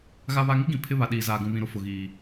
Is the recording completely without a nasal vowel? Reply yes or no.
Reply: no